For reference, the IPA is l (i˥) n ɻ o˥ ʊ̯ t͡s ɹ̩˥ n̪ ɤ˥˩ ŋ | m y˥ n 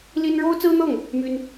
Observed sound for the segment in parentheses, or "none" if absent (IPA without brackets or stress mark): i˥